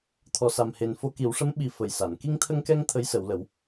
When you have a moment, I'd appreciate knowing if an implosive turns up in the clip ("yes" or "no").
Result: yes